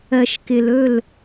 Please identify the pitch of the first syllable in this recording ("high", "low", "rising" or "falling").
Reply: low